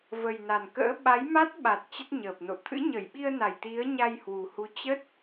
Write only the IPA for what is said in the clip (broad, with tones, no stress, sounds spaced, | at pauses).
v ə˨˩ j n a˨˩ n k ə̰ː˧˥ ɓ a˨˦ j m a˦˥ t̚ ɓ a˨˩ t̚ t͡ɕ ə˦˥ t̚ ɲ əː˨˩ p̚ n o̰˧˨ t̪ʰ ɨ̰˧˥ ɲ ə˧˩ j ɓ i˧ ə̯ n a˧˩ j t̪ i˨˦ ə̯ ɲ a˧ j h w u˨˩ h u˨˦ t͡ɕ ə˦˥ t̚